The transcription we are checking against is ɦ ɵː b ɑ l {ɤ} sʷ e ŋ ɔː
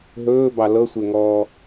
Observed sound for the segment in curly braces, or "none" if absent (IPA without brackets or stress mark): ɤ